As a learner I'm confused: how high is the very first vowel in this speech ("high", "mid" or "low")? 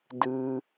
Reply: high